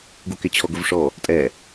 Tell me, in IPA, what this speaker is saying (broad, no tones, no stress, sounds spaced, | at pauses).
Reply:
ɡ u k ɪ t͡ɕʰ ɔ ɡ ʊ v ʂ ɔ | tʼ ɛ